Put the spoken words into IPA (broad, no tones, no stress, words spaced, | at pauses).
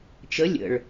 t͡ʃə lʲə̰ɭ